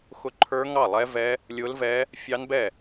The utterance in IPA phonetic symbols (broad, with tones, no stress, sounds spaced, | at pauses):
x ʊ˦˥ ǃʰ ə˞˦˥ ŋ ɑ˥˩ lˠ ɛ˦˥ v ɛ˦˥ | lʲ ʊ˦˥ l v ɛ˦˥ | fʲ ɑ˦˥ n b ɛ˥˩